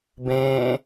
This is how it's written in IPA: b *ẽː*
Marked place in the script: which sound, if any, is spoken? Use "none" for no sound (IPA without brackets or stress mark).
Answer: ẽː